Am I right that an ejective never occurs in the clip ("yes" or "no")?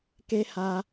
yes